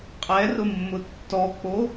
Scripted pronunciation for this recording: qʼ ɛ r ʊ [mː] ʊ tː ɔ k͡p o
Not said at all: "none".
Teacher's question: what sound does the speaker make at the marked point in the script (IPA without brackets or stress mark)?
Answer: mː